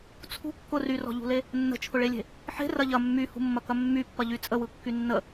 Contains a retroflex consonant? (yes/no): yes